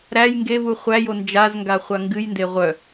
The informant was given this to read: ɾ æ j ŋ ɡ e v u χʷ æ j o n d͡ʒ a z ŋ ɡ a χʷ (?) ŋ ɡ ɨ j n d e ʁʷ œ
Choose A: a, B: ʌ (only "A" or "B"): A